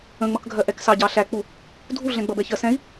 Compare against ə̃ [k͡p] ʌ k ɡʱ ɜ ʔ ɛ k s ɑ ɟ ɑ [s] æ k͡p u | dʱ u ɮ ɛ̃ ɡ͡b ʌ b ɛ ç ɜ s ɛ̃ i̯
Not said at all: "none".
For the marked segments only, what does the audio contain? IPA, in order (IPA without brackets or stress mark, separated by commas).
ŋ͡m, ɬ